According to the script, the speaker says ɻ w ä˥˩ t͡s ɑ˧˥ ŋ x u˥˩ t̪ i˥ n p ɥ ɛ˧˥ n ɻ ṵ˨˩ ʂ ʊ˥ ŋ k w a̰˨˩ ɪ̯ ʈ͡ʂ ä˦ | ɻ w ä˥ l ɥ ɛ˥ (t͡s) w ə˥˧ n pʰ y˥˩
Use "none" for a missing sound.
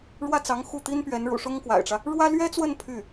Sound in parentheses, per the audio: t͡s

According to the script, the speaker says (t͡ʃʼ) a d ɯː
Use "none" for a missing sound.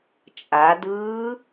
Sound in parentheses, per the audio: t͡ʃʼ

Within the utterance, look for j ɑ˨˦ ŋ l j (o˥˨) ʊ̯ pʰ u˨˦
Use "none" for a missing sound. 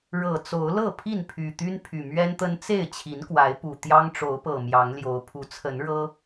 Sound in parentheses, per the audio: o˨˦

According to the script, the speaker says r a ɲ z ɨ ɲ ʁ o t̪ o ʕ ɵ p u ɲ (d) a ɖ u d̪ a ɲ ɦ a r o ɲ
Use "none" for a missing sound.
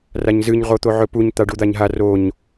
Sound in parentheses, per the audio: t̪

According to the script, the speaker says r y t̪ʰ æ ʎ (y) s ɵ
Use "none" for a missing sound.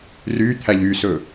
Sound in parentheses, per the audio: y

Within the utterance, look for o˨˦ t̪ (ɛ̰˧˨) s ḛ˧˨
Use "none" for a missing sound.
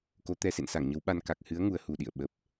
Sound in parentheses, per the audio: ɛ˧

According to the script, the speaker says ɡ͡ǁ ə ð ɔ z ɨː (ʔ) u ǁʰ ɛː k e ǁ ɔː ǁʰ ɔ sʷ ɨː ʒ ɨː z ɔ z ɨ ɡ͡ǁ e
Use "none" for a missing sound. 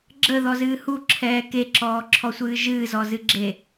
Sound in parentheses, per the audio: h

